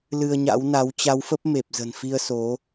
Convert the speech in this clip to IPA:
l ɨ˧ ə̯ ɲ a̰˧˥ w n a˨˦ w t͡ɕ a˨˦ w f ə˦˥ p̚ m e˨˩ p̚ z ə̤˨˩ n f i˧ ə̯ s o˨˦

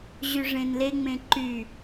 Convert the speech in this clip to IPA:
ʑ y ʐ ẽ n l e ŋ͡m ẽ ǃ y

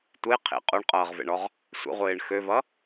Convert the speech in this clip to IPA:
tʷ e qʰ ḛ qʼ o ɳ qʼ ʌː ʁ v ḛ ɳ ɔ ʁ | sʷ ə̰ ʁʷ ɪː ɳ x ø v ʌ

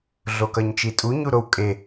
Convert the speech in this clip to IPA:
ɮ o k ʌ ɲ t͡ʃ i tʼ u ɲ u ɾ o w kʼ e

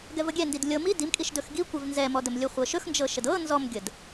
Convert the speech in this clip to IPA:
ɡ ɛ v ə ɡʲ ɛ n d i d lʲ ɤ m i d i m kʼ i ʃ d ɵ x ɡ i kʷ ɛ v n z ɛ m ɔ d ə m lʲ ɵ χʷ ɤ ʃ ɵ x n d͡ʒ ɤ ʃ ə d ɤ n z ɔ m ɡʲ ə d

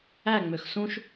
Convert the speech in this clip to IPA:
æ ŋ͡m ø x s ũ ʃ

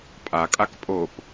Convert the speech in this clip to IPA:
pʼ a kʼ a k pʼ o p

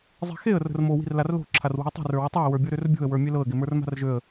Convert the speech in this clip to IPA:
zˤ i̤ x e ə̯ r ə̤ r m o w i̤ r l a r l o̤ ǁʰ a r w i̤ ə̯ tˤ i̤ r ə˞ w ə tˤ ɤ ə̯ w ə˞ bʲ ɤ ɾ ø r bʲ o̤ ə̯ w ə˞ mʲ e l ɤ ə̯ ɡ e m ə˞ r m a̤ r ʒ ø ə̯

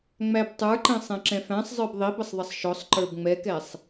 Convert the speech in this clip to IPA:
ŋ͡m æ b tˤ ə˞ ǃ ɛ̃ sˤ ɛ̃ ǁ ɛ̃ f æ̃ sˤ zˤ ə˞ b ðˤ i b ə sˤ ðˤ ɪ sˤ ʃ ɔ sˤ ǃ ə˞ b ŋ͡m ɛ k ɛ sˤ

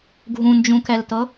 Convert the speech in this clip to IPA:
ɡʱ ũ n d͡ʒ ũ k ɛ l t ɤ

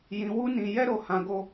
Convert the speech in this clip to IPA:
j ĩ˧ w u˦ n ĩ˧ j ɛ˦ ɾ o˧ h ã˧ ɡ o˧

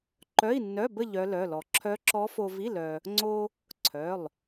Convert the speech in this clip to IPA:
ǃ œ˧˥˧ i̯ nː œ˧˥˧ b ə˥˧ ʎ œ˦˥ l œ˧˥˧ l ɔ˧ ǁʰ œ˦˥ ǁ ɔ˦˥ f o˧ v i˧˥˧ l œ˧ | ŋ͡ǀ o˧ | ǀʰ œ˩˧˩ lˠ

